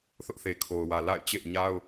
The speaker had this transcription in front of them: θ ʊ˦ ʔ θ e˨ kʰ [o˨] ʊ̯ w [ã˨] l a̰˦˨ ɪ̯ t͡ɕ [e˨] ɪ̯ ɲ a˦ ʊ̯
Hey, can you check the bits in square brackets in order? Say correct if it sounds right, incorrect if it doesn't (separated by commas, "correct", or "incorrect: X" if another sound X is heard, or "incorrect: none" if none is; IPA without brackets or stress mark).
correct, incorrect: ä˨, incorrect: ḛ˦˨